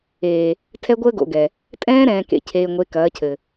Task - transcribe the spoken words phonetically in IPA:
eː˨ | tʰɛ˦ɡʷəː˦ɡo̰˨ɡɛ˨ | tʼɛ̃ː˦ ɾɛ̃ː˨kḛ˨ cʰeː˨ŋʷe˨˦kɐː˨˦cʰɘ˨

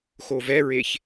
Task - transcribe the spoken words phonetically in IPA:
xovɛɹeç

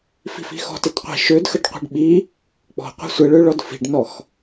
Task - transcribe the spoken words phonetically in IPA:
fi̤fi̤xɔ̤t ətqʷi̤ ʃødxəɖ qʷi̤ɖɓi | k͡pɔ̤qʷi̤ sʷəɭøɭɔd fi̤ɖnɔx

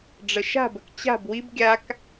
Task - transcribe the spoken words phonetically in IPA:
ɖ͡ʐəʃa̤bək t͡ɕa̤b wib ɡʲak

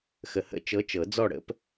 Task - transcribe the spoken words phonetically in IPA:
xə˨hə̰˥˨ t͡ʃɤ˧˥t͡ʃɤ˨˩˦d͡zɔ˥˨ɽə̰˥p

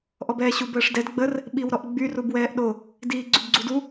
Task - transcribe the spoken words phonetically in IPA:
ʔɔbɛːɕub əːʂdɛd ɡ͡bər | ɓiwɾɔʔɡ͡by rubwɛːʔɗo | diːɡ͡ǀybɡ͡ǀudu

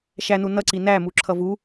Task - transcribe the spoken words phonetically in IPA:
ʃænu nʌǀi næmuǁʰʌ vu

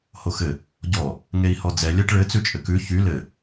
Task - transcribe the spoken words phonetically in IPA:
hoxɘ | ɟɔ | ŋei̯hɔd͡zɛ lʲɛʈɭɘ t͡sʉt͡ʃʼɘkʉ çy lɘ

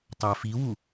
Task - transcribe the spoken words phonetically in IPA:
tˤæfiwu

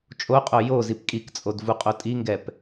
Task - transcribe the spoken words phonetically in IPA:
t͡ʃʼoqʼo jozip kʼikt͡sʼod vuqʼotʼiŋɡɛp

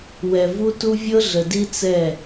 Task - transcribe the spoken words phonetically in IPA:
wɛ˨vu˦tu˦ vʲɤ˦ɮə˨di˦ t͡sɛ˦˨

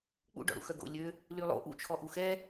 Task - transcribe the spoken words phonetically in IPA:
k͡pṵɖɔ̰ ɽṵxœɡo̰ lʲø | lylˠo̰ ʔṵt͡ʃʰɔ ʔuxɛ

